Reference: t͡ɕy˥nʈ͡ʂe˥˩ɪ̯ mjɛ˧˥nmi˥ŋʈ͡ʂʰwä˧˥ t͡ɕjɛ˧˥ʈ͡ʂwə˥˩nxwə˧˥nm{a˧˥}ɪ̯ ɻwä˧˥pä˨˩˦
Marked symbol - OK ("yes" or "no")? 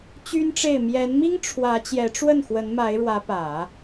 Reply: yes